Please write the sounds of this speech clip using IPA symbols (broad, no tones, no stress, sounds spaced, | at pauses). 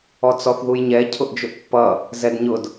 ɔ t͡s ɔ θ ð u j ɲ ɛ cʰ ʊ ʔ d͡ʒ ʊ ʔ pː ʌ | z ɛ d ɲ ʊ d